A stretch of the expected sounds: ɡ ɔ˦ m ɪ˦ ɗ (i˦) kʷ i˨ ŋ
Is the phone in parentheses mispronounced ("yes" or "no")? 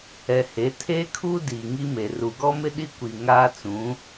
no